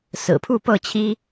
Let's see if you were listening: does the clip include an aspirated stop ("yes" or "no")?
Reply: yes